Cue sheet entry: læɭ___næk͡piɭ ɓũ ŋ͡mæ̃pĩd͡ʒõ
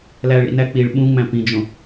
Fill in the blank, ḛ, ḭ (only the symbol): ḭ